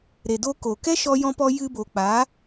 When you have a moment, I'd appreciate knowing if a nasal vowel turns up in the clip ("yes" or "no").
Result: yes